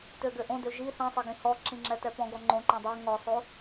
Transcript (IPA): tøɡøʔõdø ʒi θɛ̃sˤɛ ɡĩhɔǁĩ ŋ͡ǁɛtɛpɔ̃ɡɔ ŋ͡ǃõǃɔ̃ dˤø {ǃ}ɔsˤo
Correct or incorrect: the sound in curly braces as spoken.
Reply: incorrect: ŋ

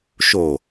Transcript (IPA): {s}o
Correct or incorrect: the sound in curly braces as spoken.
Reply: incorrect: ʃ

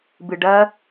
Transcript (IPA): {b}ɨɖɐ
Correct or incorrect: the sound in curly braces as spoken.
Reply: correct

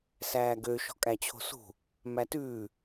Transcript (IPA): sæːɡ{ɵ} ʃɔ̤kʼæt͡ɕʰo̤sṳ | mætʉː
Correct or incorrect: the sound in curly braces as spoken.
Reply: incorrect: ø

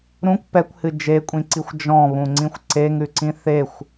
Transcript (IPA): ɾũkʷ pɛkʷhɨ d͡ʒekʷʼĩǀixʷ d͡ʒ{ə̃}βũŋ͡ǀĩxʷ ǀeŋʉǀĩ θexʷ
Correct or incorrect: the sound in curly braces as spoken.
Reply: incorrect: ɔ̃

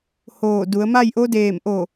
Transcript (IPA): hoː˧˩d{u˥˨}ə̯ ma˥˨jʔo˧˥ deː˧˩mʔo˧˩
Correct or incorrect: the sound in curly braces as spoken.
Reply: incorrect: u˩˧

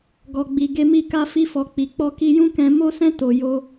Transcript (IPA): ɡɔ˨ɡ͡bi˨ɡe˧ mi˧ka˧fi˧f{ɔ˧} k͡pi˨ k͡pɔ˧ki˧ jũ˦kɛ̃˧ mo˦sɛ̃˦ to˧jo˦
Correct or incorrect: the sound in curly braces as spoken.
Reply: incorrect: ɔ˨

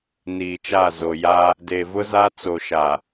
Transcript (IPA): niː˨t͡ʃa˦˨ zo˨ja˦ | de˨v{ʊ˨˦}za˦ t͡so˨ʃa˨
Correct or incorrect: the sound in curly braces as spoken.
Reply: incorrect: ʊ˦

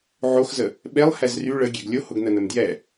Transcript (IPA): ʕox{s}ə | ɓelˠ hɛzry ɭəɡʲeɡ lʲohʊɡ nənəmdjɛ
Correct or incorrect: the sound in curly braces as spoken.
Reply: incorrect: z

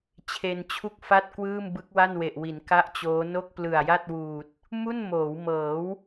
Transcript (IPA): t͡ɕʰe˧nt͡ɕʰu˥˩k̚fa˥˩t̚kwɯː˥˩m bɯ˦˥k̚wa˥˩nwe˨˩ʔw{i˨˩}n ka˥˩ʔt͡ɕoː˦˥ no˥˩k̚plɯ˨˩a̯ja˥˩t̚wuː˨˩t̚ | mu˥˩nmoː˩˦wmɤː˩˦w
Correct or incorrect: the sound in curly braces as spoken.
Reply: incorrect: i˩˦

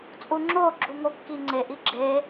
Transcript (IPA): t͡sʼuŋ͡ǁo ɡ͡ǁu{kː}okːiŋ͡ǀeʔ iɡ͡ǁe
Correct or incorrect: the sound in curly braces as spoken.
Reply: incorrect: ŋ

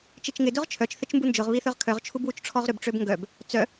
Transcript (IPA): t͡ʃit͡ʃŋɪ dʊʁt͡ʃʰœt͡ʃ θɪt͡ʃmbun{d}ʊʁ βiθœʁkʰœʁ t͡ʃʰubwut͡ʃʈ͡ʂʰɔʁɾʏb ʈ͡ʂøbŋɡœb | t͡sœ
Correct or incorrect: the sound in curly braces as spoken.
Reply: incorrect: d͡ʒ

